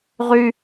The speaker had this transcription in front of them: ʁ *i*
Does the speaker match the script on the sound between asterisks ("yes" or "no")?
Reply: no